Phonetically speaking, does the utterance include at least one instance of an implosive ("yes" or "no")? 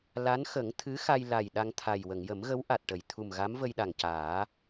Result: yes